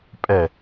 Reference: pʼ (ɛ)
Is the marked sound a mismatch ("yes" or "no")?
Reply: no